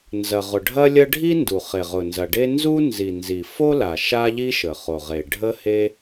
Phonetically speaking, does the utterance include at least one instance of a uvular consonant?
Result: yes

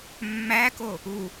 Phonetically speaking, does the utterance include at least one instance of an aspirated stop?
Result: no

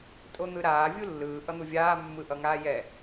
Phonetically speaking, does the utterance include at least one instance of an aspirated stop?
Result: no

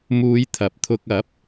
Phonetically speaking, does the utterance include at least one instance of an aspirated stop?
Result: yes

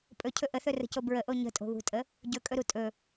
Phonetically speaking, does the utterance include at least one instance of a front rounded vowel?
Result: no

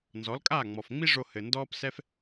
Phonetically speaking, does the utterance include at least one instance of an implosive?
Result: no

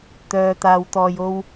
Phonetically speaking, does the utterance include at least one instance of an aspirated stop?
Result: no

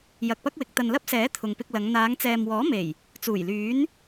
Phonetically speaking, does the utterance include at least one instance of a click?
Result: no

